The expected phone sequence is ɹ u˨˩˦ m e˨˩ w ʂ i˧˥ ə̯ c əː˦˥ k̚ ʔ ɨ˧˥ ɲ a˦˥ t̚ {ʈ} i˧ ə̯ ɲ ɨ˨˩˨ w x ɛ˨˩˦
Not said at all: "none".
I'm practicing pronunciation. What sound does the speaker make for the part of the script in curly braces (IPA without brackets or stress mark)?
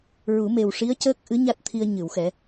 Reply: t̪ʰ